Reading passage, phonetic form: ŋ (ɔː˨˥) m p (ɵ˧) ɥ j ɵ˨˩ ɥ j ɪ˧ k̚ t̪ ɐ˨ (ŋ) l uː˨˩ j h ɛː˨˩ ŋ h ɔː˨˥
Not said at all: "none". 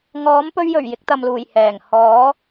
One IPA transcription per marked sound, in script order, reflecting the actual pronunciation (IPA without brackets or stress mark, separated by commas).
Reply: ɔː˨˥, ɵ˧, m